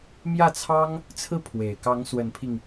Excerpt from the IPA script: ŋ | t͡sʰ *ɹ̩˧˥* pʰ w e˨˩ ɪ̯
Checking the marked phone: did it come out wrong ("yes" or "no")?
yes